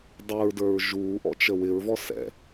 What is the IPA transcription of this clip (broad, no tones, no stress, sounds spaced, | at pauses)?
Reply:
dˤ u ɹ d ə˞ ɹ ʒ uː ʔ ɔ̰ t͡ʃ ə w ɪ ɹ v ɔ s ɛ̰